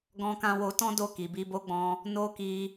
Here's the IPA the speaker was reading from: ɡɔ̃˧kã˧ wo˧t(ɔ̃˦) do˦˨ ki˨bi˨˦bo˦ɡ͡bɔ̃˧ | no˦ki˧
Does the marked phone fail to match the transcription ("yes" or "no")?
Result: no